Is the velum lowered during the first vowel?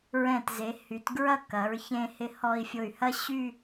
yes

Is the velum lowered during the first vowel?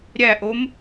no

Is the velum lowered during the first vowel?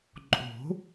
no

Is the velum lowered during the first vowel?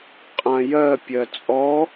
yes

